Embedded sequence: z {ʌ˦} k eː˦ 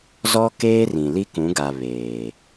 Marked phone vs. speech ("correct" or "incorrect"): incorrect